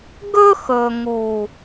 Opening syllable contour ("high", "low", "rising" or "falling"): high